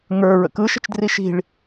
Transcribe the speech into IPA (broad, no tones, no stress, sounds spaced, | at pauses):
ŋ ə˞ ɹ ə̰ k ɯ ʃ ə̤ t͡ʃ d r i ʃ i̤ ɭ